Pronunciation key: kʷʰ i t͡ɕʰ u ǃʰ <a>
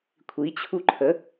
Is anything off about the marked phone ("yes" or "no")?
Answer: yes